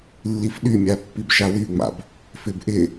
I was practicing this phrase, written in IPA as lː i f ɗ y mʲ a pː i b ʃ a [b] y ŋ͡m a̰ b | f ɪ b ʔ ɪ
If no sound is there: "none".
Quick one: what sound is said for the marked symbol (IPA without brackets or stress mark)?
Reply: w